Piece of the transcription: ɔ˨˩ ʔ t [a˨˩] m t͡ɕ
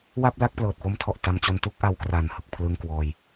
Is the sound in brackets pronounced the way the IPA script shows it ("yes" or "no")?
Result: no